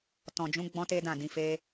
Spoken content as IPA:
tɔ̃˨d͡ʒũ˨˦ ɡ͡bɔ̃˧ te˦dã˦˨dĩ˨˦ fe˧

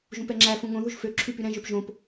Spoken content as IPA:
ʒũpɛŋ͡ǁæfũ ŋõðuʒ fø ǁʰypyɾɛ̃ʒøp ʒõp

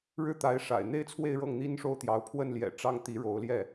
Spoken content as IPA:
ɻɻ̩˥˩t̪a˧˥ɪ̯ʂa̰˨˩ɪ̯ n̪e˥˧ɪ̯t͡sʰwe˥˧ɪ̯ ɻɤ˥˩ŋn̪i˥nʂo˥˩ʊ̯t̪jɑ˧˥ʊ̯ pʰwə˥˩nljɛ̰˨˩ ʈ͡ʂɑ˥ŋ t̪i˧˥ɻo˧˥ʊ̯ljɛ˥˩

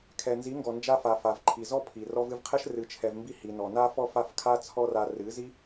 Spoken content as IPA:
kʰɛ˨nzi˨˦ŋɡɔ˨ nd͡ʒa˧fa˨ fa˨vǃʰi˨zɔ˦ pʰi˨ rɔ˧vɨ˧vqʰɛ˦ʃ rɨ˧t͡ʃʰɛ˧vmbi˦ hi˨nɔ˨na˦fɔ˦ fa˦fkʰa˦t͡sʰɔ˦ra˧ rɨ˨˦zi˦

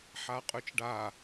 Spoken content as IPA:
ħaqʼʉt͡ʃɖa

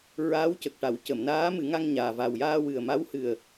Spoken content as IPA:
ɹaː˧˥wcə˨˩k̚ʈa˨˩˨w cə˨˩˨mnaː˧˥mɨ˨˩˦ŋa˧ŋ ɲaː˨˩va˨˩wjaː˧ wɨ˨˩ə̯ma˧˥w hɨ˨˩ə̯

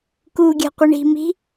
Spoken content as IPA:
kuːɡʲa̤qʷəɳi̤ mi̤

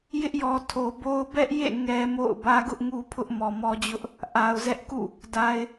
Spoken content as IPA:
jɪ˦ʔjɔ˨ tʰo˨bo˦ʊ̯ bɛ˦ʔjḛ˦˨ ŋɛ˦mo̰˦˨ʊ̯ bä˦ɡʊ˦ʔŋu˦ pʰʊ˦ʔmɔ˨mɔ˦d͡ʑʊ˦ʔ | ʔa˨ʊ̯zɛ˦ʔkṵ˦˨ | da˨ɪ̯

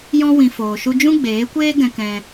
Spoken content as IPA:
jɔ̃˦wĩ˧ foː˧ʃu˦ d͡ʒũ˦ɡ͡beː˨˦kʷeː˦ ɡɛ̃˧kɛ̃˧

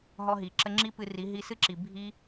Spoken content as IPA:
ɦɔ˧ɦi˨ ǁə˧ŋ͡ǁi˦pɨ˧ri˨˦ ɦi˧sɨ˦ǁi˨ bʱi˦

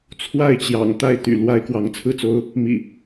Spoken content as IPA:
t͡sʰwa˥˨ɪ̯t͡ɕjɑ̰˨˩ŋ t̪a˥˨ɪ̯ t̪y̰˨˩ lwa˦ɪ̯ kwɑ˨˦ŋt͡sʰɹ̩˥˨t͡so˦ʊ̯ | mḭ˨˩

